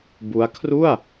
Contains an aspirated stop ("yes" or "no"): yes